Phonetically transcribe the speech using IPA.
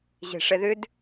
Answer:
ʑe̤ʂɛðʏd

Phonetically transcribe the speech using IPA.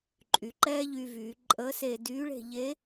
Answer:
ǃʼy˩˧ǃɛː˥ʎy˧ vyː˩˧ǃʼəː˧˥se˧ dyː˧˥ɭe̤˧ ʎe˧˥

